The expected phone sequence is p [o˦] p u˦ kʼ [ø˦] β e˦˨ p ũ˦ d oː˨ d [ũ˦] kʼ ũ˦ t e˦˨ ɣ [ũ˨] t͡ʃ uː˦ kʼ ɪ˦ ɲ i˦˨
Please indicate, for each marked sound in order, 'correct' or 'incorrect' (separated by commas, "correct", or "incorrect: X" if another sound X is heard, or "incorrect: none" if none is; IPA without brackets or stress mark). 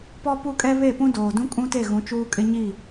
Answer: incorrect: ɔ˦, incorrect: ɛ˦, correct, incorrect: ũ˨˦